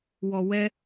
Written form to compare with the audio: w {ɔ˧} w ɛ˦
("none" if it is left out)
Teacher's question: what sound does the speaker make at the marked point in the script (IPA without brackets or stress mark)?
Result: ɔ˧